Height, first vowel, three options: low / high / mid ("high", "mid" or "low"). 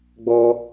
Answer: mid